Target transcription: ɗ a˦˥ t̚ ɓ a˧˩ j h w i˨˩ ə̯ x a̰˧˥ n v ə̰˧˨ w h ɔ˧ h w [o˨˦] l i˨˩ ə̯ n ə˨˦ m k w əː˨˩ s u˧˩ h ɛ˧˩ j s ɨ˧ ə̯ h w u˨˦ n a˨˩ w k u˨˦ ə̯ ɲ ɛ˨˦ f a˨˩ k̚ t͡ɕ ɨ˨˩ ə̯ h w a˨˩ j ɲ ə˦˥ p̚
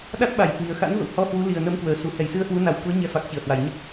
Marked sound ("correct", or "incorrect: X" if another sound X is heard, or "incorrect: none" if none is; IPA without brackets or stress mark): incorrect: u˨˦